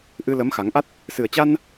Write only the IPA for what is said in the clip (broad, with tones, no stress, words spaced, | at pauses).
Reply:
ʔɨ˧lə˨˦m xa˨˦ŋ ʔa˦˥t̚ | sɨ˨˩ə̯t͡ɕa˧n